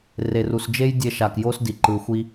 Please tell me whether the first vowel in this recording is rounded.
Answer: no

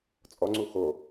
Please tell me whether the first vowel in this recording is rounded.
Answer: yes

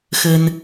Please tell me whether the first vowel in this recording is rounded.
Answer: no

